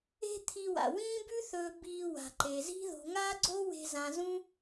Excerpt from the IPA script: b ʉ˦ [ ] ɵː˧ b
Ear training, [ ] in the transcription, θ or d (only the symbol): θ